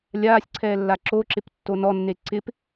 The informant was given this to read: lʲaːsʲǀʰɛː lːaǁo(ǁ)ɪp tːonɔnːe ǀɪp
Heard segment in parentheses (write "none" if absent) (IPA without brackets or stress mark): ǁ